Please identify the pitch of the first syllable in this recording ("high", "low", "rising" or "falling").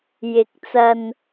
rising